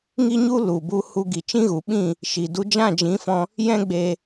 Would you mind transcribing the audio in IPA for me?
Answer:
ŋ i˦ ɲ u˦ l u˨ b u˧ h u˧ ɡ i˨ t͡ʃ ĩ˦ ɣ u˨ ɓ ĩ˦˨ | ʃ i˨ d u˧ d͡ʒ ã˦˨ d͡ʒ ĩ˨˦ f ɔ̃˧ | j ɛ̃˦ ɡ͡b eː˧

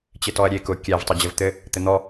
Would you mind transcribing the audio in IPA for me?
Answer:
t͡ɕ ɘ t ɔ ɐ̯ ɾʲ e k ʊ kʲ æ v tˤ ɘ d͡ʑ ɘ v t̪ ɘ | t̪ ɘ n̪ ɔ

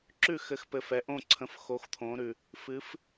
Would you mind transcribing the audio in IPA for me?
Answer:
ǁ ʉ˥˩ x ɘ˨˥ x p ɘ˨ f ɛ˨ ʔ õ˥˩ ǀʰ ə̃˨˥ f x o˨˥ x t̪ʰ õ˨˥ ɾ ʉ˨ | f ɨ˨˥ f

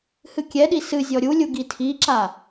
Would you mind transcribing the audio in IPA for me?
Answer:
h ɨ kʲ ɛ ɗ i s ɨ zʲ ɔ ɾʲ u lʲ u ɡ i tʰ i ǁ a

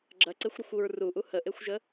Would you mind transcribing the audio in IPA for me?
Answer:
ɡ͡ǁ ɐ ǀ e xʷ ɾ ɐ xʷ u ɹ r u ʔ u h ə ʔ e xʷ ʒ ə

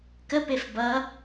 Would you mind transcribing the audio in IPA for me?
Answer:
k ə p e f b ʌ

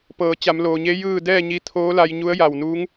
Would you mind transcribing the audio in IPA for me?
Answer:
p ɤː˩˧ t͡ɕ a˩˧ m l oː˩ ɲ e˧˥ j ɯː˥˨ d ɛː˥˨ ɲ i˧ t̪ʰ oː˧˥ l a˧ j ɲ u˧˥ ə̯ j a˧˩ w n uː˧˥ ŋ

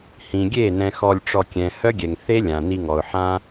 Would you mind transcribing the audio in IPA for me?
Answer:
h ĩ˨ ɡʲ e˦˨ n ɛ̃˨ x ɔ˧ lʲ ʈ͡ʂ ɔ˧ kʲ ɛ̃˨ h œ˦ ɡʲ ɛ˨ ŋ θ e˦ lʲ ã˨ n i˧ ŋ ɔ˨ ʊ̯ ħ ã˦

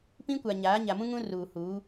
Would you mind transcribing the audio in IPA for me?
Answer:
p ĩ˦ kʷ a˨ ɲ aː˨˦ ɲ a˨ m ũ˦ ŋ ũ˦ r uː˨ h uː˨˦

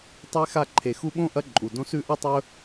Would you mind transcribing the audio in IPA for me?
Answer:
tˤ e˥ x a˦ ǃʰ e˨ x u˦ ɓ õ˥ ʔ ɐ˦ ǃʼ u˩ d õ˦ s ʉ˦ ʔ ɐ˥ tˤ ɵ˦

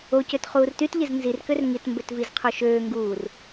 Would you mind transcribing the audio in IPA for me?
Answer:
o c ø t χ uː r t y t ʎ e z n z i r k ø r ŋ i t m b ø t v i z qʰ o ʃ øː ŋ ɡ uː r

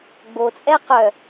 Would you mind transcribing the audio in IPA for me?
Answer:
ɡ͡b o t͡sʼ ɛ q œ

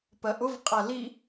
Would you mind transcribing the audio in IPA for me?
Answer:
p ɜ ʔ ʊ v qʼ æ l i

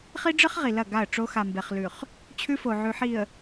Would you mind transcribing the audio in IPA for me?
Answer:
χ i˦ ɖ͡ʐ ɨ˦ χ ʁ i˨ l ɐ˦˨ ɡ a˦˨ ə̯ ʈ͡ʂ o˦ x a˨ m b e˨ χ l ʉ˨ χ | t͡ɕʰ ʉ˦ f o˨ ʕ ʉ˨ ħ i˨ ə̯

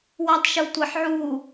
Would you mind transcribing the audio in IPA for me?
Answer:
w a tˤ ʃ u tʷ ɐ ħ ʕ u

